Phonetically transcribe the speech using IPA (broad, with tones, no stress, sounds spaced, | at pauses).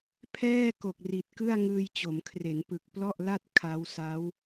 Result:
pʰ ɛː˥˩ k o˨˩ k̚ r i˨˩ t̚ k ɯ˥˩ a̯ ŋ ɯː˧ j t͡ɕ o˩˦ m kʰ r e˩˦ n p ɯ˨˩ k̚ p l ɔ˥˩ ʔ l a˥˩ t̚ kʰ a˦˥ w s a˦˥ w